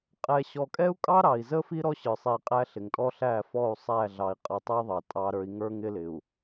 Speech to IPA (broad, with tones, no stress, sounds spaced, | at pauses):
qʼ ɛ˨ ɕ ɔ˨ kʼ ɛ˦ u̯ kʼ ɑ˦ ɾ ɑ˨ i̯ z ə˦ f i˦ ɾ ɔ˦ ɕ ə˞˨ sˤ i˨ qʼ æ˦ ɬ ɪ˨ ŋ tʼ ɔ˦ ɬ æ˦˨ f ɔ˦˨ u̯ sˤ æ˦˨ ɮ ɑ˨ i̯ qʼ ə˨ tˤ ə˦ i̯ ðˤ ɑ˨ tʼ ɑ˦ ɾ ə˞˦ i̯ ŋ ə˞˦ ŋ ɪ˦ l ɪ˨ u̯